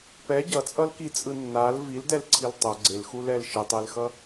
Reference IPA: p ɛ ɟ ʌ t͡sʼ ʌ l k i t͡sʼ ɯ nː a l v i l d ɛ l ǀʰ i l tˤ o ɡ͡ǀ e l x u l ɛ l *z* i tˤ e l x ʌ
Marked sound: incorrect: ʃ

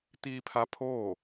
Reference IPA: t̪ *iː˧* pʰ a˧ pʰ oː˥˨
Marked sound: correct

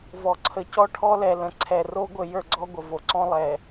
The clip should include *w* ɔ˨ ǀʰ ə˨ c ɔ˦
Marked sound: incorrect: v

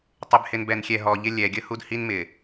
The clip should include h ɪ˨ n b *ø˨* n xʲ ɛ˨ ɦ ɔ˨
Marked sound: incorrect: ɛ˨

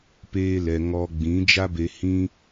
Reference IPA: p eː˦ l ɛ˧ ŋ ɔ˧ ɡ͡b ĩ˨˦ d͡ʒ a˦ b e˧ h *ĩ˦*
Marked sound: correct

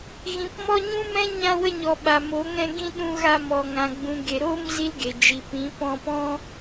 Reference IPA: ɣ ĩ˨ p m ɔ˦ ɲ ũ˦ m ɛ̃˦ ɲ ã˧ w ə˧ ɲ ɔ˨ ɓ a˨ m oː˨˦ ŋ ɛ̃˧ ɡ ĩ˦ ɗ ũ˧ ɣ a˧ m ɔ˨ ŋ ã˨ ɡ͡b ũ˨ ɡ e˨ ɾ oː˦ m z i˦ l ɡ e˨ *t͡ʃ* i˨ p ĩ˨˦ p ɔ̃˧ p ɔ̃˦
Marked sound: incorrect: d͡ʒ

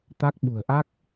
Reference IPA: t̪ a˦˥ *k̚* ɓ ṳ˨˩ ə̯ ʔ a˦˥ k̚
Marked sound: correct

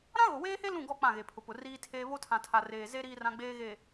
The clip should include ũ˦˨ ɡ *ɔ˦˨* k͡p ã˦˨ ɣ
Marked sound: correct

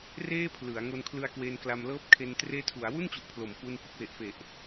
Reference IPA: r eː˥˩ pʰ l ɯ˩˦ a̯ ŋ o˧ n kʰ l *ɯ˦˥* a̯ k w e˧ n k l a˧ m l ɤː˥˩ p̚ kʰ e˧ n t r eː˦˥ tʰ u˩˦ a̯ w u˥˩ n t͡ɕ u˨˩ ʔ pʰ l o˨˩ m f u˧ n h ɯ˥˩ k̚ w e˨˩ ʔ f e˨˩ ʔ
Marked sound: incorrect: ɯ˧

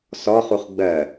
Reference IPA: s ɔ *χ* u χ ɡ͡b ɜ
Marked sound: correct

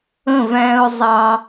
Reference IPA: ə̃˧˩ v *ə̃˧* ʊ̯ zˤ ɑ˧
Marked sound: incorrect: æ̃˧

